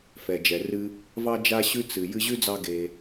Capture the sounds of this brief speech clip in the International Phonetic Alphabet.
fɛ˩d͡ʒɛ˩rɨ˦ | vɑ˦d͡ʒa˦ɕʉ˦ t͡sɨ˩ jɨ˦ʑʉ˥d͡zɑ˦ ɡe˨

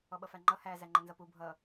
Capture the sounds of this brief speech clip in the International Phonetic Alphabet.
ɔɓʌfæŋ͡ǃʌ hæ zæŋ͡ǃənzʌpu bʱʌ

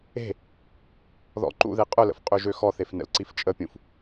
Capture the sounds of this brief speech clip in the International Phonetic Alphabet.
e̤ | ðɔ̰ǃṵðe qʼʊlə̰f qʼøʒøxɔθef nə̰lǀift͡ʃʼəpʲũf

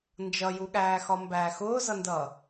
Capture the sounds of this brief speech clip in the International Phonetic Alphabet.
nd͡ʒʌjuɠæːxɒ mbæːxʊːzʌndʌː

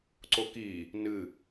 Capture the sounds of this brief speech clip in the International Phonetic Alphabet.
ǀoki | nɨ

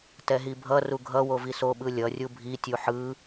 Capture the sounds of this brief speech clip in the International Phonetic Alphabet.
tɛɦibʱʌ ruɡʱʌ woviso ɓɯlʲʌ rʲubʱi tʲuħɯ

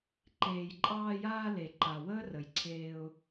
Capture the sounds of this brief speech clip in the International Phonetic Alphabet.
ǃeː˨jǃʼɑː˧jaː˧ le˨ǃa˨ wəː˦rə˨jǀʰeː˧ʊ̯

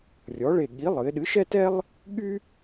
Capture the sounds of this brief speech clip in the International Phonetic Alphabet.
rʲɔ˨˥ɭe˦˨ ɠi˨˥ lˠɨ˩˧ɪ̯ɗɨ˨˥ʃɛ˥tɛ˥lˠ | ɠy˥

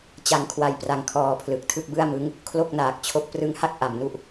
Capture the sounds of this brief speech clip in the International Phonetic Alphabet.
t͡ɕa˧ŋkʰwa˧j pra˧ŋkʰɔː˧pʰlɯ˨˩k̚ tʰɯ˥˩k̚bɯ˥˩a̯mɯ˦˥ŋ | kʰlo˥˩k̚naː˨˩k̚t͡ɕʰo˦˥k̚ prɯ˦˥ŋha˥˩k̚ ʔa˩˦mnu˦˥ʔ

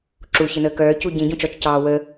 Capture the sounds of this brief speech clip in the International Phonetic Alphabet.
ǁu çɘnəːkœː cuɟĩ ɟũt͡ʃɔt͡ʃ cɑːwə

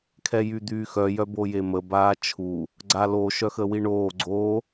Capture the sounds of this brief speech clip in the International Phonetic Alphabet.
kʰɛjyd̪yːxœ jœbojemə baːt͡ʃʰu | ɡ͡ǀalo ʃœxəwiɳoː ɡ͡ǀo

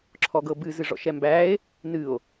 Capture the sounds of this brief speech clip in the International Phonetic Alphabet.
ǁʰɔɡɤbɨ zɨʐɔ̰ʃɛmbæe̯ | nɨo̯

